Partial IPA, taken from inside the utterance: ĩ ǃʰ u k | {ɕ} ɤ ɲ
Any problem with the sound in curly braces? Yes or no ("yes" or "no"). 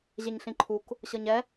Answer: no